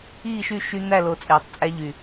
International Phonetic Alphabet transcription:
iː˦˨ʃy˦˨ ʃy˦ n̪æ˦˨lo˨ t͡sʼeː˨tˤt͡sʼæ˦ʎy˨

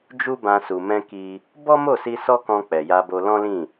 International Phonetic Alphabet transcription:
d͡ʒu˦bã˧su˨ mɛ̃˧ki˧ | bɔ˦mo˦˨si˧ sɔ˦kɔ̃˧ k͡pɛ˨ja˧bo˧ lɔ̃˦lĩ˦˨

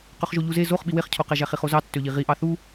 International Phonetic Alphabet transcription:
qøχʒoʎuze zoχ ɓiweχcʰoqæ ʒæχiχozɑ tːøʎiʁiʔɑ θu

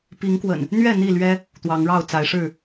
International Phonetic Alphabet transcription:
pi˨˦ŋkwə̰˨˩n | n̪ɥɛ˥˨ n̪i˥˨lɥɛ˦ | t̪wɑ˨˦ŋɻɑ˥˨ʊ̯t͡sa˨˦ɪ̯ʂɻ̩˥˨

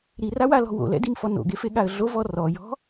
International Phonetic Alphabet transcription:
ɾirawalɔ̤ wo̰lɛ̰dimfɔ no̰ɡefeɠaə̯ ɮovɔ rɔjɔ̤

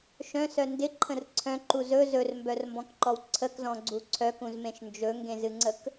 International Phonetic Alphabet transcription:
ʃœ̃sœ ndɪǃʰə̃r ǀʰœ̃ǃu zɵ zɵrmbœrmbɔ̃kǃɔw ǀʰəkzɔ̃ɡ͡ǀu ǀʰœkũzmẽʃ nd͡ʒɵŋɡẽzɨŋ͡ǀək

